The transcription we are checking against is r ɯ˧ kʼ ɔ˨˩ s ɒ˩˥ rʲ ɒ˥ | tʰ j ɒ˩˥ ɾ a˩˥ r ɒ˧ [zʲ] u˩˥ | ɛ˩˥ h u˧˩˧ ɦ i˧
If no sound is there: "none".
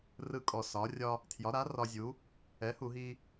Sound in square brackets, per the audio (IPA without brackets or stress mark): zʲ